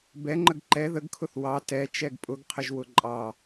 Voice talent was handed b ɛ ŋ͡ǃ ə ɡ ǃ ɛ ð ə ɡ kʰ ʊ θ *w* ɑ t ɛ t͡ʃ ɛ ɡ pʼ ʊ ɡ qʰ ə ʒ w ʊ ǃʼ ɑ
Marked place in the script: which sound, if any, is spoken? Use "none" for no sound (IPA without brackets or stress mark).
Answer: w